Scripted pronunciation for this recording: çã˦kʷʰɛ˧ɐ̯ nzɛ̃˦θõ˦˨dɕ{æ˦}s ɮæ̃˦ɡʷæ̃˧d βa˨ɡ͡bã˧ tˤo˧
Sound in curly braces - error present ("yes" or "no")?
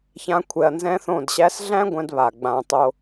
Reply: no